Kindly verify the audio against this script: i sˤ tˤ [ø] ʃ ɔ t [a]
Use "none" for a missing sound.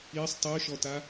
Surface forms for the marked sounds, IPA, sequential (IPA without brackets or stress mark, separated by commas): ø, a